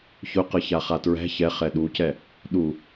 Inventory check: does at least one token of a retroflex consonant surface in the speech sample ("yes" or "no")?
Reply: no